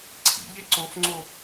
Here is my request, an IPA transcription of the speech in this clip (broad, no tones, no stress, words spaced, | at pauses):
ǀʰḭʎe ǀofŋ͡ǀo